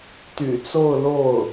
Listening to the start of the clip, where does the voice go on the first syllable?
low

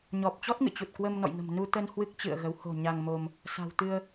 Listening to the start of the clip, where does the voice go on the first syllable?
low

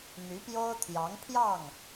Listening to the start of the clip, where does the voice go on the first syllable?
rising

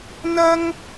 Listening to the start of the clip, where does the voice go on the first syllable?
high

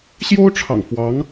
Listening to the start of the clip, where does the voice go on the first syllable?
high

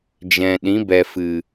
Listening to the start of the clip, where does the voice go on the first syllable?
low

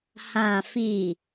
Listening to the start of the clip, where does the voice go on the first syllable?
low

